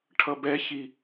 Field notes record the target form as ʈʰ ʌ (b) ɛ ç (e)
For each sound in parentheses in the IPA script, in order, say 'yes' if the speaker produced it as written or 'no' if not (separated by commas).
yes, no